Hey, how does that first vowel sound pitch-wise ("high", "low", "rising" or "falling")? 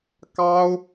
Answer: high